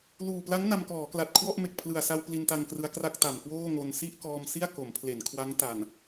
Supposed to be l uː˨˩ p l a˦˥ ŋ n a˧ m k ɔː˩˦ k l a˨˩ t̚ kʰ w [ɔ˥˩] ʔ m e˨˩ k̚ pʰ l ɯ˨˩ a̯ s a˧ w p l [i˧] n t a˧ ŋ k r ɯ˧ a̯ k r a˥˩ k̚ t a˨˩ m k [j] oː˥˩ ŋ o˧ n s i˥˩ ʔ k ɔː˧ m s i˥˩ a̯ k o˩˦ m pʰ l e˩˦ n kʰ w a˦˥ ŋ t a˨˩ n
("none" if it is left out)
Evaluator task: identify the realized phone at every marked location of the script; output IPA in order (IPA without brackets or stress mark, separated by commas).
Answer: ɔ˥˩, i˧, w